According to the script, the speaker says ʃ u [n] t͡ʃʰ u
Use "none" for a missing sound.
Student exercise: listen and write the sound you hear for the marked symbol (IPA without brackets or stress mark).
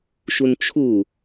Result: n